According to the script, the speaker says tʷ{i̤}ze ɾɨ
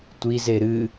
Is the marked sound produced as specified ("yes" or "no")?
no